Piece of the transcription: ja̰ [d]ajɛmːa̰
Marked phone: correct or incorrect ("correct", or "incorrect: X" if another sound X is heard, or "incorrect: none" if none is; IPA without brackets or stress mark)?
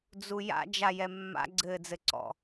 incorrect: d͡ʒ